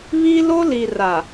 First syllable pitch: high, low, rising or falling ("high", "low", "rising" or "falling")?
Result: high